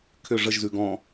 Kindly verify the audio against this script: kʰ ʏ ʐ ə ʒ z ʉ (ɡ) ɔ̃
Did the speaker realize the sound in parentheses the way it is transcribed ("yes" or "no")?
yes